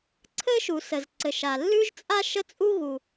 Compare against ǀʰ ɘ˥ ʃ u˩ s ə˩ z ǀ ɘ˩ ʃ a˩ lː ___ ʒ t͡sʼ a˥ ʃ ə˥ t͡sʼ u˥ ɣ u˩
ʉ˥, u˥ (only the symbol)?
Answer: ʉ˥